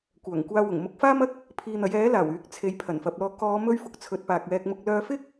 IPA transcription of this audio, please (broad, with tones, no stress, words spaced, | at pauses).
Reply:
kʷœː˨˩ŋkʷaː˧ wʊ˨˩ŋmʊ˨˥k̚ faː˥mɐ˥k̚ | pʰiː˧n̪ɐ˨˥j ɛː˨˥laː˨˩w yː˨k̚ t͡sʰe˨j pʰɐ˨˩nfɐ˨p̚ lɔː˨kɔː˨˧ mɵ˥ɥfʊ˧k̚t͡sʰɵ˨˥t̚ paː˨k̚wɛː˧k̚mʊ˧k̚ lœː˧fɪ˥k̚